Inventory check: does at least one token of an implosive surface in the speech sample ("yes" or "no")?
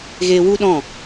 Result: yes